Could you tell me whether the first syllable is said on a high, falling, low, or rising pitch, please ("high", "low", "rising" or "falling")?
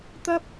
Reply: high